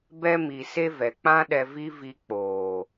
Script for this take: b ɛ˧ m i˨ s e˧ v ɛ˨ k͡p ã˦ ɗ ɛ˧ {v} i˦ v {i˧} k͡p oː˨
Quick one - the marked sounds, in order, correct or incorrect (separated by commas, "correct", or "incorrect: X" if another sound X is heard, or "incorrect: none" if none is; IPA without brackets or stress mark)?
correct, correct